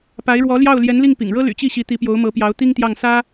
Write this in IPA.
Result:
pa˧˥ɪ̯ɻwɔ˧˥ljɑ˥˩ʊ̯ ljɛ˧˥nli˥˩ŋpḭ˨˩ŋɻɤ˥ ly̰˨˩t͡ɕi˥˩ɕi˧˥ t̪i˧˥pjo˧˥ʊ̯mɤ˧˥pjɑ˧˥ʊ̯ t̪i˥ŋt̪jɑ˥˩ŋ sä˥

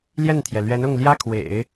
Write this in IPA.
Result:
ljɛ˥˩nt̪ʰjɛ˩ lɥɛ˧˥nʊ˥˩ŋljä˥kʰwḛ˨˩˦ɪ̯

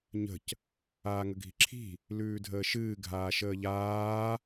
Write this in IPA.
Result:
ɲə̤c | aːŋəɡʱi̤ǁʰi̤ | lʉːdʱəːʃɨː ɡʱaːʃəːʎaː

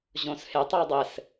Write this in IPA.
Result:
ʑõshɪtˤue̯ dˤɘs

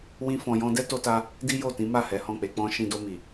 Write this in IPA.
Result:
wĩ˦fɔ̃˧jɔ̃˦ dɛ˦to˧ta˧ | di˦jo˦˨tĩ˨˦ma˦˨ hɛ˨˦hɔ̃˦˨k͡pe˧k͡pɔ̃˦ ʃĩ˧do˧ mi˨

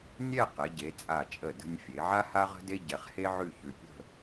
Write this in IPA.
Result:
nʲɛ˥˧qɛ˩˧ɟe˩˧ t͡sʼa˧˩t͡ʃʼə˧˩ də̤˧nʲfʲe˩˧ʕa˥ ha˥ʁə̤˥de˥ ɟɛ˧χhe˥ʕʉ˥˧çʉ˧ pʲə̤˥˧

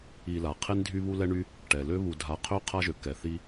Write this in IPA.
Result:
i˨ la˩qʰe˥n dʱy˦βu˦lɛ˦ɳy˦ | ʈɛ˩lø˥βu˨ dʱa˨qʰø˥ qʰa˦ʒø˩kːɛ˩ θi˦

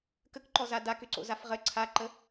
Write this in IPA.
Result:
kəkǃɔza dakʏǀo̰zaf ʁə ǀʰaǃə

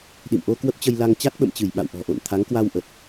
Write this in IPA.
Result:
ɗḭ˧˨mʔo˧ kwə˦˥p̚t͡ɕə˧j la˧ŋ t͡ɕa˦˥t̚ɓə̰˧˨mt͡ɕɨ˧˩j ɓa̰˧˨w ʔɔ̤˨˩ʔo̰˧˨n t̪ʰa˨˦ŋkwa˧w ʔə˨˩t̚

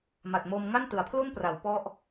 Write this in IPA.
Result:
ma˨˩t̚mo˧m ŋa˥˩ntɯ˩˦a̯pʰlu˥˩npra˩˦w pɔ˥˩ʔ

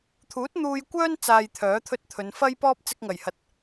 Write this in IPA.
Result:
t̪ʰuː˨˥t̚n̪uː˧jkʷœː˥n t͡saː˧jt̪ʰœː˨˥t̪ʰɵ˥t̚t̪ʰɵ˨˧n fɐ˥jpɔː˥p̚ t͡sɪ˧k̚ŋɐ˨˩jhɐ˨t̚

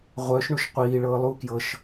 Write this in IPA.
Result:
ʁʷœʃ ɳuʃqʷiːɭɤː lˠu kjɤʃ

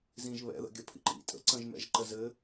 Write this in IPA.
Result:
zĩʒ βɛ̰ðə̰ ɡʲəpʰḭǃḭ tʼə̰ǀə̃ʒmɛ̰ʒǃə zɘ

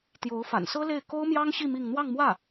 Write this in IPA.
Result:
t̪jo˧˥ʊ̯fa̰˨˩nsɤ˥le˥˩ɪ̯ ko˥ʊ̯mjɑ˥ŋɕi˥˧ mi˥˧ŋ n̪wɑ˥˧ŋmwä˥˩

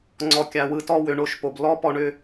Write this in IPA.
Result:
ŋ͡ǀɔ˨kʲa˨wɯ˨ tɔ˦wʏ˨ɳo˦˨ʃpo˨b lɔ˦pɔ˦˨ɳʏ˦

